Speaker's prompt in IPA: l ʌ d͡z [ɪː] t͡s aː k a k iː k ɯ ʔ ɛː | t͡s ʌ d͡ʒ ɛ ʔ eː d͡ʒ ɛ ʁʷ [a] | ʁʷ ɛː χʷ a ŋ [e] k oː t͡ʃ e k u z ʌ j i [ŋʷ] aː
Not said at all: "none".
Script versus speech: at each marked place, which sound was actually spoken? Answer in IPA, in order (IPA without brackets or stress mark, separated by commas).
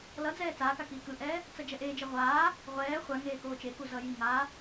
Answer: ɛː, aː, eː, ŋ